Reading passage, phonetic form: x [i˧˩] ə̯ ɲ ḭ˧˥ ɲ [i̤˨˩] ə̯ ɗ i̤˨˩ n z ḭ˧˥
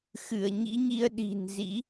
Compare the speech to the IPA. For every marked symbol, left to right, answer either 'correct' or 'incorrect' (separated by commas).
incorrect, incorrect